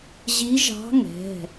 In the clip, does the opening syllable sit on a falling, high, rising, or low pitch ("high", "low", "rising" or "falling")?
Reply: rising